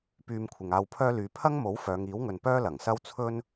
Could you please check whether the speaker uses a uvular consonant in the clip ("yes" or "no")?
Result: no